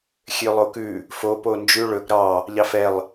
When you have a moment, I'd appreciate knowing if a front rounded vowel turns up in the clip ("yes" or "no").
yes